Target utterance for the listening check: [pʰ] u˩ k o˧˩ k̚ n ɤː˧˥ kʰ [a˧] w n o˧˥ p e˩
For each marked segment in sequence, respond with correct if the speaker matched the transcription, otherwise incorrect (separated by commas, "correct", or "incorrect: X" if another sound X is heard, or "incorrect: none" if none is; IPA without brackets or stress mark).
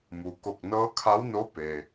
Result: incorrect: m, incorrect: a˧˥